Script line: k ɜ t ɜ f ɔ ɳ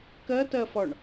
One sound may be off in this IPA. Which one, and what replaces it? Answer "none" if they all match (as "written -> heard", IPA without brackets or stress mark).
none